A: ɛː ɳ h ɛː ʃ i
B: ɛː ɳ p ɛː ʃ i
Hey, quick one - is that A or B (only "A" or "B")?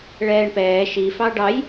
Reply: B